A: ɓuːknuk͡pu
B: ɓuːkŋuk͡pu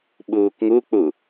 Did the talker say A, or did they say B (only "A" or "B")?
B